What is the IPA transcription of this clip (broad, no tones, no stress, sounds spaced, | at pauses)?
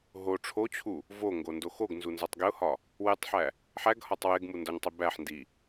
ɦ o ʈ͡ʂʰ o t͡ɕʰ u | v o ŋ ɡ o n d o x o ɡ n z u n z ɒ tˤ ɡ e ʊ̯ h ɒ | w e tˤ ħ æ | ħ æ ɡ h ɒ tˤ w e ɡ m u n d ɒ ɲ tˤ i b æ ħ n d i